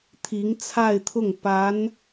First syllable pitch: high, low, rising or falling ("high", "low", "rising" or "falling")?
rising